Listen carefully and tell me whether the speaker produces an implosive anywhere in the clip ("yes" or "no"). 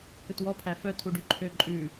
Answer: no